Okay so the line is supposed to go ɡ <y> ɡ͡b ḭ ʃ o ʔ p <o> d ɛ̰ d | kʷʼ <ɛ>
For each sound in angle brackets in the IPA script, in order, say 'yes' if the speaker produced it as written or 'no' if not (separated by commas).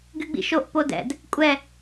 yes, yes, yes